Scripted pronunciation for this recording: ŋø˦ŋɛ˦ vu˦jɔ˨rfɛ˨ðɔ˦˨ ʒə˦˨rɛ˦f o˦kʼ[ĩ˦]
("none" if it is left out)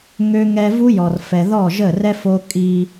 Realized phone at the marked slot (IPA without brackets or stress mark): i˦